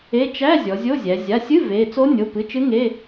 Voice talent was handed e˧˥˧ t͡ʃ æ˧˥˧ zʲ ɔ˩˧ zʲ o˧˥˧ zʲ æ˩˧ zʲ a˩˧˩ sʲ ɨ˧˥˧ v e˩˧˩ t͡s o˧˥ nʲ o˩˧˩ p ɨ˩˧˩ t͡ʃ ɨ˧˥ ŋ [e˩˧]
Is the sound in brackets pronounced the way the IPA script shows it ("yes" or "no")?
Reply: no